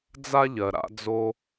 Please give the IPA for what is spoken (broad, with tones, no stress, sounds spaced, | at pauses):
d͡z a˦ ʎ ɜ˨ ɾ a̰˧ d͡z o˧